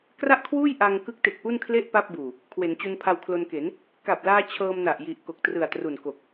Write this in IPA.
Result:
k r a˥˩ ʔ kʰ w uː˥˩ j ʔ a˧ ŋ k ɯ˦˥ k̚ t e˨˩ k̚ p u˥˩ n kʰ l e˥˩ ʔ p a˥˩ p̚ b uː˨˩ | kʰ w e˩˦ n t͡ɕ u˧ n pʰ a˧ w kʰ l o˧ n k e˩˦ n | k a˨˩ p̚ l aː˧ t͡ɕʰ ɤː˧ m n a˨˩ ʔ j i˨˩ ʔ k o˨˩ k̚ t r ɯ˨˩ a̯ t r u˨˩ n k o˨˩ k̚

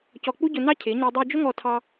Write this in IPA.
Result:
c ɔ˧ k͡p u˦ ɟ ʊ˧ n ɑ˦ cʰ ɪ˨˦ ɲ i˧ dˤ u˧ d͡ʒ ʊ˦ ŋ ɔ˧ tʰ ɑ˧

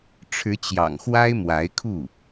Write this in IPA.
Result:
ʈ͡ʂʰ ɻ̩˧˥ t͡ɕ j ɑ̰˨˩ ŋ x w a˥ ɪ̯ m w a˧˥ ɪ̯ kʰ u˥˩

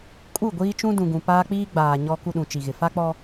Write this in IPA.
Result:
kʼ u˦˨ ɡʷ iː˦ t͡ʃ ũ˦ d ũ˨ ɡ ũ˨ p aː˦ k͡p iː˦ ɡ͡b aː˨ ɲ ɔ˦ k u˦ ɗ ũ˨ t͡ʃ i˨ ɣ ɪ˨ f a˦ k͡p ɔ˦

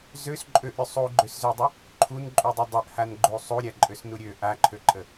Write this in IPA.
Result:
z ø s ǃʼ ø ʔ ɾʲ u sˤ u ɡ͡ǃ ø s z ø dˤ ə | ǃʰ u n ǃʼ u dˤ u dˤ ø ʔ h a n ɡ͡ǃ u sˤ u ɾʲ a ǃʼ ø s n u ɾʲ ø ʔ a ǃʰ ø ǃʼ ə

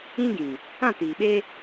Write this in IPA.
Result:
ĩ˦ ɡ ĩ˨ | ã˦˨ t iː˨ ɓ e˦

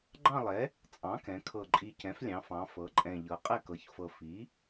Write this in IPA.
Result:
ɡ͡ǃ ɑ̃˥˧ lˠ ɛ˩˥ | t͡sʼ ɑ̃˩˥ k ɛ̃˩˧ kʰ ɤ˨˩ ǃʼ i˨˩ c ɛ̃˩˥ f lʲ ɑ̃˩˧ f ɑ̃˩˧ f ɤ˩˥ ǃʼ ɛ̃˨˩ ʎ ɤ˩˧ qʼ ɛ˥˧ k ɤ˩˥ ç f ɤ˨˩ f i˩˥

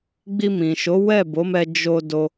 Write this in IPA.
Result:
ɡ͡b i˧ m ĩ˨ ʃ o˨˦ w ɛ˦˨ b o˨˦ m ɛ˧ d͡ʒ o˧ d o˧

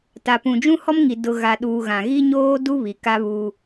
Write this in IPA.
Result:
t a˨ p ũ˨ d͡ʒ ũ˦ h ɔ˦ m ŋ i˨ d ʊ˨ ɣ a˨ ɗ uː˨ ɣ ã˨ ɣ i˦ ɲ oː˦ d u˦ β i˨ k a˦ β u˦

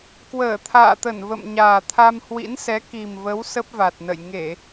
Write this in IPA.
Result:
k w əː˧˩ t̪ʰ a̰ː˧˨ t̪ ə˧˩ n v ə̰˧˨ m ɲ aː˨˩ t̪ʰ a˧ m h w ḭ˧˥ n s ɛ˨˦ k i˨˩ m v ə˨˦ w s ə˦˥ p̚ v a˨˩ t̚ n ə̰˧˨ j ŋ e˧˩˨

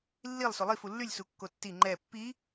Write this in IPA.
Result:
lː i lˠ s o lˠ i f u lː y lʲ s u kː o tː i ŋ͡ǃ ɛ pː i

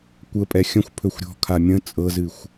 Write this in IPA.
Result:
kʷ ə pʼ ɛ xʲ ə̃ xʷ pʰ ɵ xʷ ɾʲ ɔ̤ kʰ a mʲ ə̃ t͡sʼ ɤ z ɨ xʷ

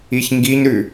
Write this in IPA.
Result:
i ç ŋ ɡ i ɲ ɾ ʉ

